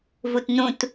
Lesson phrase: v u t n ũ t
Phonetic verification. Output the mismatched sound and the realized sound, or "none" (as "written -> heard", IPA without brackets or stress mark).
none